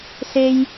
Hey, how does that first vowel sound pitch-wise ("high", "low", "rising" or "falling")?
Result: high